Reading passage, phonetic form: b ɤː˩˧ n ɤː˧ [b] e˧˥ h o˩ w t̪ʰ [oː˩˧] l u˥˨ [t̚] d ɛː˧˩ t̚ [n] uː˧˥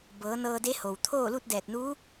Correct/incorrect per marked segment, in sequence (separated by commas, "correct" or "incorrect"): incorrect, incorrect, correct, correct